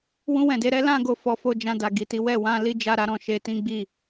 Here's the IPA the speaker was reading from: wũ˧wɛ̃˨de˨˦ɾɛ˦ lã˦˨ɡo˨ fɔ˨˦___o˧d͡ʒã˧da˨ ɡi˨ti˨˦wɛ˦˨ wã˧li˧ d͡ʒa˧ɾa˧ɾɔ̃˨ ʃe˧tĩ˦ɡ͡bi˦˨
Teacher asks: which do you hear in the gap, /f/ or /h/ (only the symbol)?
f